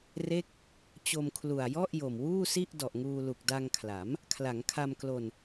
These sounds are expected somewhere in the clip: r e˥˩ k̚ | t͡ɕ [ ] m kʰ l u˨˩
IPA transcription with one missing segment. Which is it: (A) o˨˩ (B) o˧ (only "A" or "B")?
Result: B